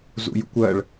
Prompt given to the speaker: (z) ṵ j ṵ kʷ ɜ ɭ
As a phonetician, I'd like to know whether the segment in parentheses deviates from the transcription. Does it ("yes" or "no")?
no